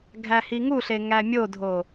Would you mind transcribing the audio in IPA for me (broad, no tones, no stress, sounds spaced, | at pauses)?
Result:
ɡʱ æ h i ŋ u ɬ e ŋ æ mʲ o dʱ o